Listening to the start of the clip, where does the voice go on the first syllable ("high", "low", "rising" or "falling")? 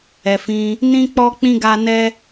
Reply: low